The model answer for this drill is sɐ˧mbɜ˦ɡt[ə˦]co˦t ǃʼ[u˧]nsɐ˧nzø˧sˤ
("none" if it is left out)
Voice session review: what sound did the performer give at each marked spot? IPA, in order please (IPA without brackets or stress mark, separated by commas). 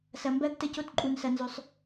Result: ə˦, u˧